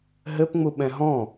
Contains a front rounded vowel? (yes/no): no